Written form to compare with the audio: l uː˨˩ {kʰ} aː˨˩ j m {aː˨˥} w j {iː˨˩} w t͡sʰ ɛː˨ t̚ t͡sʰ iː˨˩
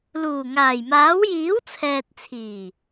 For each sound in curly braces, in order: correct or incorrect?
incorrect: ŋ, correct, incorrect: iː˨˥

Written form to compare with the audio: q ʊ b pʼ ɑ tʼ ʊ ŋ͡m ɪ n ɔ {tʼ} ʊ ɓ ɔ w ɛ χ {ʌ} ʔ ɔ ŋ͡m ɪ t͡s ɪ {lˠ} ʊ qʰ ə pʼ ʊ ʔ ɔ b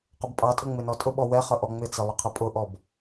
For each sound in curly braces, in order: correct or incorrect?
correct, correct, correct

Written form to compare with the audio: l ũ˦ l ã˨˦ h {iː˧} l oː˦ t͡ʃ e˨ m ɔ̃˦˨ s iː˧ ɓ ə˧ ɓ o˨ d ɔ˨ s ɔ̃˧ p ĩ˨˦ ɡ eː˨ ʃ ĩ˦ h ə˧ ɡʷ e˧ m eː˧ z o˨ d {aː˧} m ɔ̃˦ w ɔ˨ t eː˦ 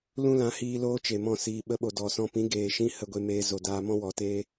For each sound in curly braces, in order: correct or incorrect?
correct, correct

